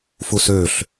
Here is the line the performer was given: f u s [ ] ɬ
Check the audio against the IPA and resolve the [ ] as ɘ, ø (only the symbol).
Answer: ø